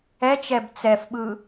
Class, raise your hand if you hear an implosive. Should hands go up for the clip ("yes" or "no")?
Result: yes